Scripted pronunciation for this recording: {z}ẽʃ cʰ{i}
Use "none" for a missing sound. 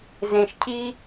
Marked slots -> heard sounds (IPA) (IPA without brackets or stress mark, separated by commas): z, i